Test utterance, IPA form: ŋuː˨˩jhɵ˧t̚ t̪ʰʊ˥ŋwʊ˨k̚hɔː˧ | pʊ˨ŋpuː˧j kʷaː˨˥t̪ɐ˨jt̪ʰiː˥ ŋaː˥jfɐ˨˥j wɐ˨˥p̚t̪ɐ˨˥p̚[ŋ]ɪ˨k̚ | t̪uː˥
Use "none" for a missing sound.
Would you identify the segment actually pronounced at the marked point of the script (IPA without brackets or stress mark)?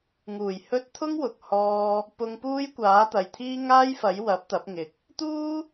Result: ŋ